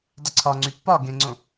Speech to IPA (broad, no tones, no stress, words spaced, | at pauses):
dˤʏǀʰɒŋ͡ǀy pːɒ ɡẽŋ͡ǀõ